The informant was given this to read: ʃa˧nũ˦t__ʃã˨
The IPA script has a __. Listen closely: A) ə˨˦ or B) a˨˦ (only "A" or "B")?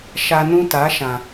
B